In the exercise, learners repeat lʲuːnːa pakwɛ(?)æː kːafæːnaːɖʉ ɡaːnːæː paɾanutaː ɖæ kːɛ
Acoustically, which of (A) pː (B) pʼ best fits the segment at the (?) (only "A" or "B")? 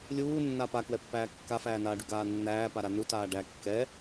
A